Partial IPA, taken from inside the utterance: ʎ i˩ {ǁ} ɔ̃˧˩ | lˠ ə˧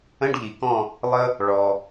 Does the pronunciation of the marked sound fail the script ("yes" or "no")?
yes